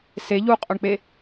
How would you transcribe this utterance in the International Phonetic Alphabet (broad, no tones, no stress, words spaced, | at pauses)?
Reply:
se ʎuqʼɵɳk͡pe